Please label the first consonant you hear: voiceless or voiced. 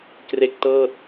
voiceless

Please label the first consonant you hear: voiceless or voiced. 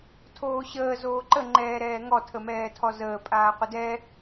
voiceless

